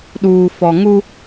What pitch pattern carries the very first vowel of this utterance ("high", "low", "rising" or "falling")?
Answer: low